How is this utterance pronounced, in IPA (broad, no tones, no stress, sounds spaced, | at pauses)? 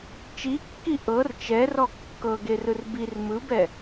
t͡ʃ i kː i ʔ ɤ r t͡ʃ ɛ r ɔ kː ɤ ɡ e r ɯ r b i r m ɯ b ɛ